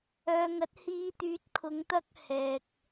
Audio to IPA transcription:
œː˨ ŋ ɐ˨˥ t̚ h iː˧ t̪ yː˨˥ t̚ kʰ ʊ˨˧ ŋ t̪ ɐ˥ k̚ h ɛː˨ k̚

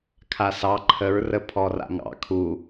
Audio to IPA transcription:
kʰ a s ɑ ǃʰ ə ɹ r ə pʰ ɔ r a̰ ŋ ɑ̰ kʰ u

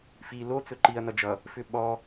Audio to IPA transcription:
f i l o t͡s ɵ ǃ i ɐ̯ n ʌ d͡ʒ ʌ | f ʏ ɓ ɔ

